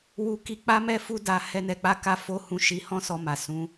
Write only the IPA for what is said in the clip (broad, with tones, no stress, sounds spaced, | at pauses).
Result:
w u˧ k i˧ k͡p a˦ m ɛ˦ f u˦ d a˧ h ɛ˧ n ɛ˨ k͡p a˧ k a˧ f o˧ h ũ˨ ʃ i˨˦ h ɔ̃˦ s ɔ˧ m a˨ s ũ˨˦